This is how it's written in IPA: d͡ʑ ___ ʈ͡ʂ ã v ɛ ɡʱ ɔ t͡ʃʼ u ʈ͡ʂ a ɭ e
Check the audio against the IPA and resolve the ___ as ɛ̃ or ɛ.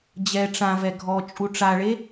ɛ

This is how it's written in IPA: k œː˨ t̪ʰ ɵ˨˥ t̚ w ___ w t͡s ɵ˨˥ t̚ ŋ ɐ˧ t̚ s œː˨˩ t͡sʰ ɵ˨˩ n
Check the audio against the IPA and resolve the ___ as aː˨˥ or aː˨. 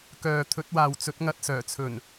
aː˨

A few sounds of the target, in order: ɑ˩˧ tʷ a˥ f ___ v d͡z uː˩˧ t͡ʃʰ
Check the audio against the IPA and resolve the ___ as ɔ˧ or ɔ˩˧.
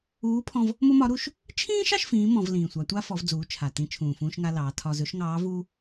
ɔ˩˧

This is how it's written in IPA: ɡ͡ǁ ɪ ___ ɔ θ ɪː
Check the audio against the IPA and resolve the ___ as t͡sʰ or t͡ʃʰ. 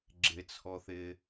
t͡sʰ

